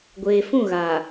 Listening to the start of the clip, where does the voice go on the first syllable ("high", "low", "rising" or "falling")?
low